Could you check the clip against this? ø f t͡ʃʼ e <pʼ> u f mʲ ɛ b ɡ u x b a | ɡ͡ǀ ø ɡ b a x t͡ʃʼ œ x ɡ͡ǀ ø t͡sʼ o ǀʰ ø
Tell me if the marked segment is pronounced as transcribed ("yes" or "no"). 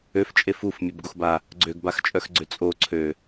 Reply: no